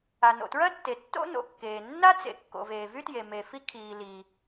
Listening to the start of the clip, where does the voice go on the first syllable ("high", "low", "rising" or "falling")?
low